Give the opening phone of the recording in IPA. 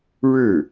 ɻ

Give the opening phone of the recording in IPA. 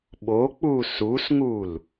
ɓ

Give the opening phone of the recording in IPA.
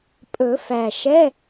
pʼ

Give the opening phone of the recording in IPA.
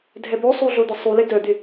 dʱ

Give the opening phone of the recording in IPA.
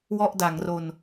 w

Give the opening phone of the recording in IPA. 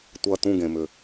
tʷ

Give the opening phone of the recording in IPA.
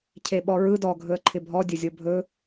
cʰ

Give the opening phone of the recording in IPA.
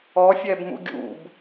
ɔ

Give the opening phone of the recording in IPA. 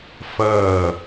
f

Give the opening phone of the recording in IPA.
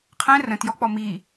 qʰ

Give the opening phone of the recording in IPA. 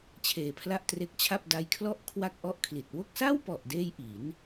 t͡ɕʰ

